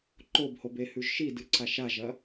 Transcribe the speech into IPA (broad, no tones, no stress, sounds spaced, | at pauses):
ǃ o b h o b e h ʉ ʒ ʃ i d ɨ ǀ a ʃ a ʒ ɐ